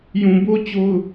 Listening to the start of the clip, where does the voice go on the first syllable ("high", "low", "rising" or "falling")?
low